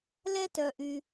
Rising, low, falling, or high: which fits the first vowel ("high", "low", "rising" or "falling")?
high